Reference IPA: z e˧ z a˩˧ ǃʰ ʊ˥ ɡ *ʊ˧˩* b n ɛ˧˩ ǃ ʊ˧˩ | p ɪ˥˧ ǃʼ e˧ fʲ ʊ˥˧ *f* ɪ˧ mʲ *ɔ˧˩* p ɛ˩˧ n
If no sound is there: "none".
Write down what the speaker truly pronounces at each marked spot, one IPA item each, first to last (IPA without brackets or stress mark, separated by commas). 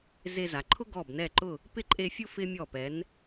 ɔ˧˩, f, ɔ˧˩